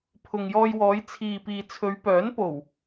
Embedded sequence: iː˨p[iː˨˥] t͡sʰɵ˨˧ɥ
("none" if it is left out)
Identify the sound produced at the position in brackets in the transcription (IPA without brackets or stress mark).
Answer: iː˨